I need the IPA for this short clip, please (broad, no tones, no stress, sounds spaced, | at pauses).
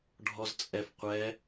ɖʱ ɔ z t͡sʼ ɛ f qʷ ɛ